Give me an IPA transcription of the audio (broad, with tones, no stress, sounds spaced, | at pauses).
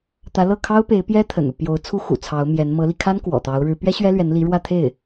t̪ ä˧˥ l ɤ˥˩ kʰ ɑ˥ ʊ̯ p e˧˥ ɪ̯ p j ɛ˥ t̪ʰ ə̰˨˩ n u˦ p j o˧˥ ʊ̯ t͡sʰ u˥ x ṵ˨˩ t͡sʰ ɑ˧˥ ʊ̯ m j ɛ˧˥ n m ɤ˧˥ l i˧ kʰ a˥ n k w ɔ̰˨˩ t̪ ɑ˧˥ ʊ̯ ɻ ɻ̩˧˥ p ɥ ɛ˥ ɕ ɥ ɛ˥ l ɥ ɛ˧˥ n l i˧˥ ɻ w ä˥˧ t̪ʰ e˥˩ ɪ̯